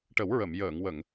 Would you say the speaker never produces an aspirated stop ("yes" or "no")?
yes